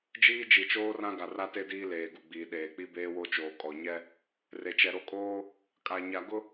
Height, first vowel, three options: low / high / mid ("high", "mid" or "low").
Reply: high